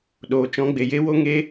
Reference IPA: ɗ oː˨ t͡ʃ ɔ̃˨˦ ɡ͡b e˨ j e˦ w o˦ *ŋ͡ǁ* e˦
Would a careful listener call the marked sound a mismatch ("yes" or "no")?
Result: yes